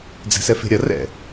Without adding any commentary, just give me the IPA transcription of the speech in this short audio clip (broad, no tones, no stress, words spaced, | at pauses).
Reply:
d͡zɛ̤sɛfe̤ɾʲɐ rɛ̰